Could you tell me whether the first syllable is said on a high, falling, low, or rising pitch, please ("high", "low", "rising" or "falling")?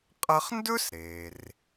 high